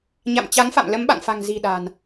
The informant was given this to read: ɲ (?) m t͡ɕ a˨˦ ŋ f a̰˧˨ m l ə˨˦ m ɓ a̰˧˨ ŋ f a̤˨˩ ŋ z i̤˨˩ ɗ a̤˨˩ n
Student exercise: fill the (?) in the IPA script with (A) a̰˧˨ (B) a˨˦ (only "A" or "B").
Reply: A